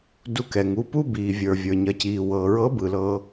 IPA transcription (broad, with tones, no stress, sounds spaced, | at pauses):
d u˧ k ɛ˩ ŋ u˩˧ p u˥ b iː˩ vʲ ə˞˩ vʲ ə˞˩ ɲ ɐ˩˧ c iː˩ w ɤː˩ ɹ ɤ˧˥ b ɯ˩ l ɤː˧